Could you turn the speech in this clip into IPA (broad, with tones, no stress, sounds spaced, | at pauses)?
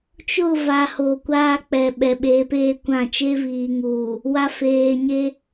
t͡ʃ ʊ˦˨ v a˨ h o˨ kʷ aː˦ k͡p ɛ˨ ɓ ɛ˨ ɓ e˨˦ p eː˦ kʷ ã˦˨ t͡ʃ e˦ v iː˨ ŋ uː˨ | w a˨ f eː˨ ɲ e˦